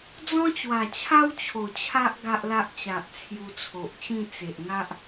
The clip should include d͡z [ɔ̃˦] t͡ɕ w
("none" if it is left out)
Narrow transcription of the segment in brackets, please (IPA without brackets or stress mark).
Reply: ɔ̃˦